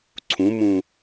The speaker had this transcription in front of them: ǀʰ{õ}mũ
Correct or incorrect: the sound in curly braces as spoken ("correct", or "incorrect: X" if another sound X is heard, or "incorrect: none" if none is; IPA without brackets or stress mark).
incorrect: ũ